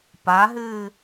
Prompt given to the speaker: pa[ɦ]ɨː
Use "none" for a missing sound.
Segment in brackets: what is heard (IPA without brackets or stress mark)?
ɦ